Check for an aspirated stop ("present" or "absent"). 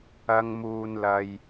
absent